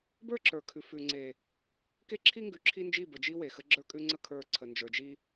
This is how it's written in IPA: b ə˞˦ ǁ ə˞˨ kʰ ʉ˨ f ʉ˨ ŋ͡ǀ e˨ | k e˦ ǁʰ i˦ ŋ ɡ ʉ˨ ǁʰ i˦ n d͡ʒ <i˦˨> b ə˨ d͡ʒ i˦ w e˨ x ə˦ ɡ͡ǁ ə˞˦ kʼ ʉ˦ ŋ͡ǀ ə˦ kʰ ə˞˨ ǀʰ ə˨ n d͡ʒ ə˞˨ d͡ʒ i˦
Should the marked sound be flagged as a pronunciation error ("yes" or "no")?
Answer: no